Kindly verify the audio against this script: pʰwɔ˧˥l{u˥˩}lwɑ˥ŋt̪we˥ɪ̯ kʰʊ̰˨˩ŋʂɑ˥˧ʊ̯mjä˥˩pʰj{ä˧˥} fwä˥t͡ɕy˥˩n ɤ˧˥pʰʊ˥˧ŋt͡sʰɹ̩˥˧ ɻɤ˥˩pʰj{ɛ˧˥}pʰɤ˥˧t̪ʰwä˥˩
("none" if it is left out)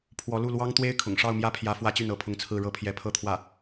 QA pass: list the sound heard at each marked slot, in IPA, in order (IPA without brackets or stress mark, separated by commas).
u˥˩, ä˧˥, ɛ˧˥